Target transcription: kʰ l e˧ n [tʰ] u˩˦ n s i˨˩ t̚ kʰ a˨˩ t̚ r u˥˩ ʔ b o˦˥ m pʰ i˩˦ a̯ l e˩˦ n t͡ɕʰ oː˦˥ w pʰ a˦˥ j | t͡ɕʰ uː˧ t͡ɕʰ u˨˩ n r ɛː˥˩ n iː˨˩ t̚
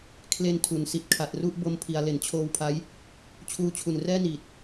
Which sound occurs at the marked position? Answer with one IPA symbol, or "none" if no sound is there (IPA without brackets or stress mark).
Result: tʰ